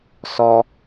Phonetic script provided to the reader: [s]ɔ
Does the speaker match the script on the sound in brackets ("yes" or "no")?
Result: yes